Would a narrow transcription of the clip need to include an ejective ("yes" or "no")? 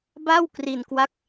no